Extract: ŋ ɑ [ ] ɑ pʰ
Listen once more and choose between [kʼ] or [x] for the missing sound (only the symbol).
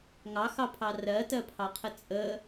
x